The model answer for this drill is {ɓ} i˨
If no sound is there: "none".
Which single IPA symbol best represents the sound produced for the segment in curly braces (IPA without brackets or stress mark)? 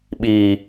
ɓ